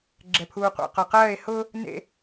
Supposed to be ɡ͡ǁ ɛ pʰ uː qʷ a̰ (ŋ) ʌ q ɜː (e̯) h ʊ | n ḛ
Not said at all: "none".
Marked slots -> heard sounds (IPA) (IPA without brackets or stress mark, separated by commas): q, e̯